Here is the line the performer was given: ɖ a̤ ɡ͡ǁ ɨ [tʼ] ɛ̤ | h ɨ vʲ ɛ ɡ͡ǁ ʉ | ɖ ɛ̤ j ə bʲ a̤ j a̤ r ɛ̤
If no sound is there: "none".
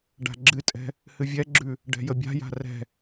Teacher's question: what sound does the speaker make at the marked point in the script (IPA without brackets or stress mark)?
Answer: tʼ